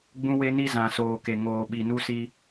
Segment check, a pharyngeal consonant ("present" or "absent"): absent